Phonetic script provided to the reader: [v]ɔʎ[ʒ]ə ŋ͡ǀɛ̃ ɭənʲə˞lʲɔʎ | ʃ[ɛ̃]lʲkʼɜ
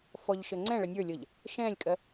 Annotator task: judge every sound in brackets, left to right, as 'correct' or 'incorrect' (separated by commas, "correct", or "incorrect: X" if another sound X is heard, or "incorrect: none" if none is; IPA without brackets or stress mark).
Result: incorrect: f, incorrect: ʃ, correct